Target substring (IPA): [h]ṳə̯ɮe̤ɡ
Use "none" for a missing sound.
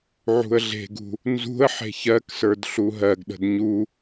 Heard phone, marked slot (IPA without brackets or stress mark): ʕ